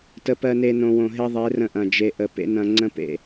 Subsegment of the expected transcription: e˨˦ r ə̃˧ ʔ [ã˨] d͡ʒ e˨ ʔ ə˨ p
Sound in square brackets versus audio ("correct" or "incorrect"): incorrect